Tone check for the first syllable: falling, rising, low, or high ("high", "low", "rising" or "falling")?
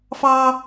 high